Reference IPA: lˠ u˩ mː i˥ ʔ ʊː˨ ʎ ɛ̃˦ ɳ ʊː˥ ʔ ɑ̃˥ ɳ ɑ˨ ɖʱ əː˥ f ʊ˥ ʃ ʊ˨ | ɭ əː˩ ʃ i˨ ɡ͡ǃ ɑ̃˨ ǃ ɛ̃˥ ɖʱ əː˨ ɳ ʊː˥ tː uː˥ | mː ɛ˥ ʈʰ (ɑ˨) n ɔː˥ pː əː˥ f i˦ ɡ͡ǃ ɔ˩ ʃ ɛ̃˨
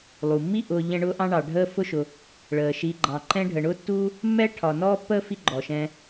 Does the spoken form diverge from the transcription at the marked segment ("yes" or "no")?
yes